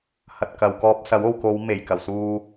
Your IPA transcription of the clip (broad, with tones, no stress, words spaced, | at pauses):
hɐ˨t̚kɐ˨w kɔː˧p̚sɐ˨˥w o˨wko˨˧wme˨˩jkɐ˨˩w suː˨